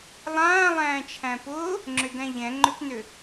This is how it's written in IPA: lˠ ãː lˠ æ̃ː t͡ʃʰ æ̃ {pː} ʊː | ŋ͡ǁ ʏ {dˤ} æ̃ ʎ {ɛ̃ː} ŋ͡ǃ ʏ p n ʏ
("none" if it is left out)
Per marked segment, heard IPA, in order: p, d, ɛ̃

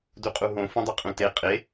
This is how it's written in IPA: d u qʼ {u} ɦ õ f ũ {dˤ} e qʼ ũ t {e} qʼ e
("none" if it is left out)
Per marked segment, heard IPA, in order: u, dˤ, e

